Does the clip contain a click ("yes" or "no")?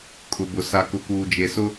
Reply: no